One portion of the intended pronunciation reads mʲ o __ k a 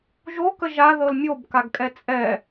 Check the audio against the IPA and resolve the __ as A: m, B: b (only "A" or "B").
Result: B